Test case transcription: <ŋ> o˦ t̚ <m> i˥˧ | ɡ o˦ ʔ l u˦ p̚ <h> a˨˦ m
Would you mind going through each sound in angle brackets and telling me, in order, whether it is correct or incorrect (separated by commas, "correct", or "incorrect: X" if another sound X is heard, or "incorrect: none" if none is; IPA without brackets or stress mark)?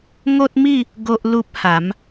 correct, correct, correct